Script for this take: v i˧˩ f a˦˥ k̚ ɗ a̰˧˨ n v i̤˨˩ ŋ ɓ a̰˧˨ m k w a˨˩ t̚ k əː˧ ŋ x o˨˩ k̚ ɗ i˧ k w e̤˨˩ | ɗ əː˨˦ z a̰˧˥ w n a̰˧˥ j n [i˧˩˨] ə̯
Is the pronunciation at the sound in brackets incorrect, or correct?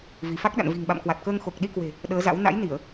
correct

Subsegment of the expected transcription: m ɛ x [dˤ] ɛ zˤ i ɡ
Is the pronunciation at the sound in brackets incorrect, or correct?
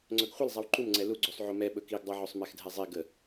incorrect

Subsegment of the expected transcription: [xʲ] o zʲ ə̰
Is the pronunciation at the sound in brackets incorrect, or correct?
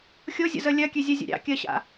correct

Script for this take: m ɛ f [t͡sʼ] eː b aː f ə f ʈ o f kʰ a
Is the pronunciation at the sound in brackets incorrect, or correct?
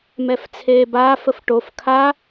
incorrect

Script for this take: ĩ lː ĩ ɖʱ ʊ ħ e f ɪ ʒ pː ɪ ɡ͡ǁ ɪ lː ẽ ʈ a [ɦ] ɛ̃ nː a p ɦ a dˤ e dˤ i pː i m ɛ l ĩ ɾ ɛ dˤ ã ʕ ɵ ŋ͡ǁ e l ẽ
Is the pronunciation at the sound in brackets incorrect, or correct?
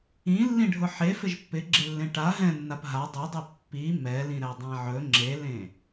correct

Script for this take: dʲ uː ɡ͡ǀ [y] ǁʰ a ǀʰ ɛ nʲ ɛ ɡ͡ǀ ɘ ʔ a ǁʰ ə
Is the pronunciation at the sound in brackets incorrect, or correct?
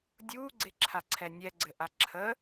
incorrect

